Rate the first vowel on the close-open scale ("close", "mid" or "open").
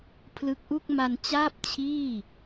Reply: close